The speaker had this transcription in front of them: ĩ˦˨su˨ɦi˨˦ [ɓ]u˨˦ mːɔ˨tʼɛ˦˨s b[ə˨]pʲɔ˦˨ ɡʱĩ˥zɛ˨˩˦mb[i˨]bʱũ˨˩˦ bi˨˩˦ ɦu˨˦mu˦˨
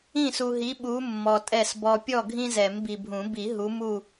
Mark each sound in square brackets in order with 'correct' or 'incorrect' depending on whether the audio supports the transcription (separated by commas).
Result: correct, incorrect, correct